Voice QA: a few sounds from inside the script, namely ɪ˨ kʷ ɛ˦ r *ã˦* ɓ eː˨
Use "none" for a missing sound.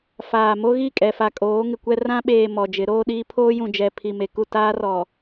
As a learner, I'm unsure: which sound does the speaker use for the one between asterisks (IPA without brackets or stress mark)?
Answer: ã˦